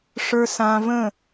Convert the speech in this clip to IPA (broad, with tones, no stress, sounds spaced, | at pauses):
ʂ ə˞˧ s ãː˧ v ə̃˦˨